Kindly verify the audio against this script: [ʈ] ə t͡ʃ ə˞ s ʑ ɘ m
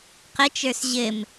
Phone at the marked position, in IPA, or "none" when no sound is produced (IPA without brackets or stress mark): q